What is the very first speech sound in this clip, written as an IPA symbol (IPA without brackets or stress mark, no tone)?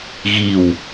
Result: ɣ